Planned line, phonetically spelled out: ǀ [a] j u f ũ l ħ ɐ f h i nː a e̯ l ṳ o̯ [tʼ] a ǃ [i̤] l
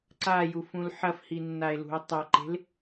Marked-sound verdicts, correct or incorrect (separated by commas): correct, incorrect, incorrect